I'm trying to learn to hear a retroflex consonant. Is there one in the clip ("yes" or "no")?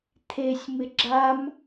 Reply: no